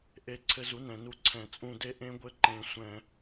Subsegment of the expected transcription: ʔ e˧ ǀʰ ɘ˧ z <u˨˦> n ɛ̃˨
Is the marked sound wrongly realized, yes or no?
no